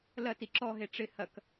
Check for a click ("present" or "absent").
present